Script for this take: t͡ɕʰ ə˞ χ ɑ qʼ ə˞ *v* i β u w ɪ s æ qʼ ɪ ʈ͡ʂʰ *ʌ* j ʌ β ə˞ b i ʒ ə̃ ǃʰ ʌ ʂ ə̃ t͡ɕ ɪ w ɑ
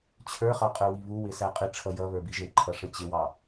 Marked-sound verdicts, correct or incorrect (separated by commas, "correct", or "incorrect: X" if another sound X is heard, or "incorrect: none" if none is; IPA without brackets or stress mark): incorrect: w, correct